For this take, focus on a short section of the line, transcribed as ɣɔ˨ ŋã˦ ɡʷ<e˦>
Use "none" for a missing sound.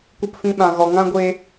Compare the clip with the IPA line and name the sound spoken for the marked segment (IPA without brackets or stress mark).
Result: e˧